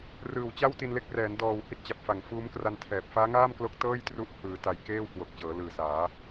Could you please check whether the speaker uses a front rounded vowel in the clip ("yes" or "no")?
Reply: no